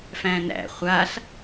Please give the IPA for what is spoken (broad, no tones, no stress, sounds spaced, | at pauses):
f æ̃ n æ̰ χʷ a ɬ